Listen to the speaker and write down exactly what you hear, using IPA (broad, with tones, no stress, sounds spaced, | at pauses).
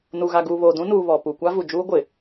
n u˨ ɣ a˨ ɡ uː˨ β oː˨ d ũ˦ n uː˨ β ɔ˨ p u˨ kʷ a˦ v u˨ d͡ʒ uː˦ ɡʷ ɪ˨